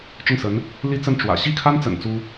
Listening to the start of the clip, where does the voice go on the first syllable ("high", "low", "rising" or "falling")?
falling